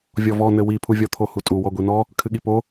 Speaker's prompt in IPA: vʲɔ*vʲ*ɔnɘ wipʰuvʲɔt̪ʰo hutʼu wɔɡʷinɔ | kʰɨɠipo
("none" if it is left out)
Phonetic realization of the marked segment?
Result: v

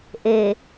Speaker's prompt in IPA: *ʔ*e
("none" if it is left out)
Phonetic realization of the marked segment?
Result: ʔ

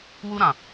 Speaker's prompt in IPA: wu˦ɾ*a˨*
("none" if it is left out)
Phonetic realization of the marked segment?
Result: ã˨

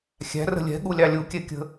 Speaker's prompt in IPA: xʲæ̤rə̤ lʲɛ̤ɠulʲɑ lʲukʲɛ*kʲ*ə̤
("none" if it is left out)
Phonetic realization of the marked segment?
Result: kʲ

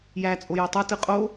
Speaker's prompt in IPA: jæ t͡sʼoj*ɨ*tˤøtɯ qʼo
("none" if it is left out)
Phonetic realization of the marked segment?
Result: e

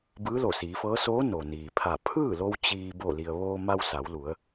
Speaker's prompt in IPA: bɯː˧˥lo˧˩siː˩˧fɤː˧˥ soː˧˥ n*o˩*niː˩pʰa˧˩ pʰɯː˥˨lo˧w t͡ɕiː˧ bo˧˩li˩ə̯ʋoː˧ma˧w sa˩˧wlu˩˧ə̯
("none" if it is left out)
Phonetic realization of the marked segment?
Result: o˩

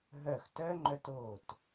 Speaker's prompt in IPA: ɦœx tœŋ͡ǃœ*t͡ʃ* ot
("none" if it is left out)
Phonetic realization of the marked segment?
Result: t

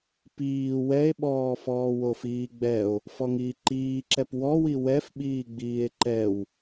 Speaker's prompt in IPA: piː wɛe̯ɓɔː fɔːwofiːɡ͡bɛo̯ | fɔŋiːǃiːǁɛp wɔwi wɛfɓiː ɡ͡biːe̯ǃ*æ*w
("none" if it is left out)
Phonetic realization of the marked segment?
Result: ɛ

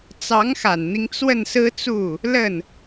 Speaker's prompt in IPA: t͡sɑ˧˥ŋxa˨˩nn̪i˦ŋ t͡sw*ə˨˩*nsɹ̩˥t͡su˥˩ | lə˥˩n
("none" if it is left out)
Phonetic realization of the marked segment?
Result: ə˥˩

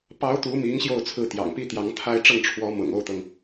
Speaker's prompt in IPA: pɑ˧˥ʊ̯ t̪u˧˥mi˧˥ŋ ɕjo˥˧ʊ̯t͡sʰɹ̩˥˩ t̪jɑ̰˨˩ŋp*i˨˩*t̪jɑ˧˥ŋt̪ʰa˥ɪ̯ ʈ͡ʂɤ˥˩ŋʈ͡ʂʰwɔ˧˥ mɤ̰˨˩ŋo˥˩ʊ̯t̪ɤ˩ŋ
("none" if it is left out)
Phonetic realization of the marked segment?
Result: i˥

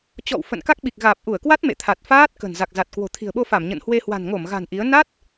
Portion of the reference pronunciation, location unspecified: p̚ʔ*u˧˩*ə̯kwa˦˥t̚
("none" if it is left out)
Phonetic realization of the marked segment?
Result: u˧˩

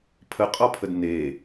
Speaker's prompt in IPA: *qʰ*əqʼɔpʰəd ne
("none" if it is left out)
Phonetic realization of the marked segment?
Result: pʰ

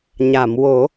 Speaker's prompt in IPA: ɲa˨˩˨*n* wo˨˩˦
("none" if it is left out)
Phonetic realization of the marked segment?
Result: m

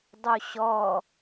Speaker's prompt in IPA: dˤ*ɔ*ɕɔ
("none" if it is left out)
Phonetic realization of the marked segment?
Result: o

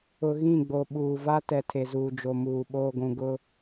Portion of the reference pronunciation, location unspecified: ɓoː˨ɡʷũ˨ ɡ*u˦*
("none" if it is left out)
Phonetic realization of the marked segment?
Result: ʊ˦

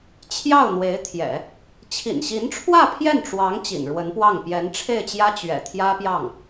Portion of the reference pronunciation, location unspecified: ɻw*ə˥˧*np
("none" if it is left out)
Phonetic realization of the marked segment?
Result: ə˧˥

